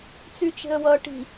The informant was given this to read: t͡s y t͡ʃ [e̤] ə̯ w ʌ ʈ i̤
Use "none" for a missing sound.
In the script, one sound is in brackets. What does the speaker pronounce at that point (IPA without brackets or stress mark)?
e̤